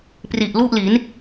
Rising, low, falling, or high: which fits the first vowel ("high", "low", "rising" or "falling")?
low